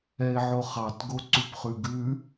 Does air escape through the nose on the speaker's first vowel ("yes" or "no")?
no